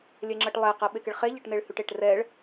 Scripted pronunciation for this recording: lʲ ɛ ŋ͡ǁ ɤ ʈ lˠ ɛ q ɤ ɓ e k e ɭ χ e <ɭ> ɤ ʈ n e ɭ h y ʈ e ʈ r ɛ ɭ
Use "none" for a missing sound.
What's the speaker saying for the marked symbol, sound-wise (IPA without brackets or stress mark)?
ʎ